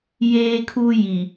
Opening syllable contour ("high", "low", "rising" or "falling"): high